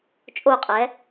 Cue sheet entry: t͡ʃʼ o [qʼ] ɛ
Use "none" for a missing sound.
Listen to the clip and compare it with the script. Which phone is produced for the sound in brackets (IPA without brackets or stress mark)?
qʼ